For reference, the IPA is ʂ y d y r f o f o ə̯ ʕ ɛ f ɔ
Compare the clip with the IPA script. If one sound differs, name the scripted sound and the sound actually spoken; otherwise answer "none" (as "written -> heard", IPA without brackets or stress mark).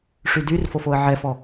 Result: none